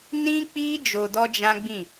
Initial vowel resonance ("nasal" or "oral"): nasal